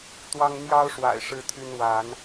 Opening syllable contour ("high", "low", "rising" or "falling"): high